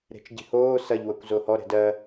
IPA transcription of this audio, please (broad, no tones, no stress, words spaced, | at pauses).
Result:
ɾe̤t͡ʃɟi̤hoː sɐʎ wɤkʷzohɔ ɾɛ̤dɜ